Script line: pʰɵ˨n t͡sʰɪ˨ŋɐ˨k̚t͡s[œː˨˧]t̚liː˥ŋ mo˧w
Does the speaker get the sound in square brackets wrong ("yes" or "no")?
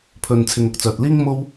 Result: yes